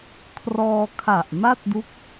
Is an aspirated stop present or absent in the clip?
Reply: present